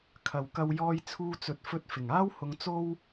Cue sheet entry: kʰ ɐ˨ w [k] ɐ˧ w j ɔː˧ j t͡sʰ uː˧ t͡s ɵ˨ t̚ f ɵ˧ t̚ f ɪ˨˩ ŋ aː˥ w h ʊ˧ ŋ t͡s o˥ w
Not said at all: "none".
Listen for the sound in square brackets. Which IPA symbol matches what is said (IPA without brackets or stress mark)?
k